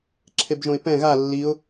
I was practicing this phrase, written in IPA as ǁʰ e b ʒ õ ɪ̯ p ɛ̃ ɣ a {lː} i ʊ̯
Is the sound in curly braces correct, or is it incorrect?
correct